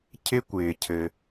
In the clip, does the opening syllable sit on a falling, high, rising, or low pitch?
high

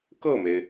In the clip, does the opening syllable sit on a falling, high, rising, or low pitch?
falling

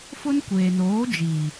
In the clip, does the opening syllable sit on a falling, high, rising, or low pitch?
high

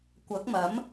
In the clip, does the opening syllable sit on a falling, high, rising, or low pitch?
rising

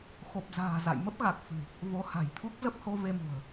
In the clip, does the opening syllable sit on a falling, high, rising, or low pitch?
low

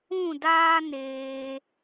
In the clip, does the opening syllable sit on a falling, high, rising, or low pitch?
falling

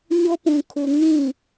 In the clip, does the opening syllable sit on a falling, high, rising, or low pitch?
high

